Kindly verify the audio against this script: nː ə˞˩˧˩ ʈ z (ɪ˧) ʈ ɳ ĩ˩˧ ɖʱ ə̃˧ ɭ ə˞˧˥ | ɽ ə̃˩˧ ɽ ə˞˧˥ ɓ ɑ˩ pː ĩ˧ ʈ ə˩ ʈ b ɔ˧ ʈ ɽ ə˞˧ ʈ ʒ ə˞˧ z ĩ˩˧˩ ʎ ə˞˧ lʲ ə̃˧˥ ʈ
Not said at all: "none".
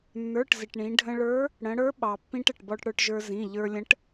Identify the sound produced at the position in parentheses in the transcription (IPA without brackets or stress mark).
ɪ˩